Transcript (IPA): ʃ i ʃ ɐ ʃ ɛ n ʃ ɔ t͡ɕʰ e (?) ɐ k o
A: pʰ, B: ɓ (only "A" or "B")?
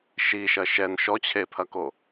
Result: A